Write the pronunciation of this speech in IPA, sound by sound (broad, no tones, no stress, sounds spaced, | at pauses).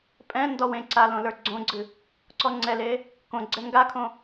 pʼ ɛ̃ n d ɔ w ẽ ǀ a l õ l ə˞ ɡ͡ǀ õ ɡ͡ǀ ɨ | ǀ ɔ ŋ͡ǀ ɛ l e | k õ ɡ͡ǀ ɛ ŋ ɡ a kʰ õ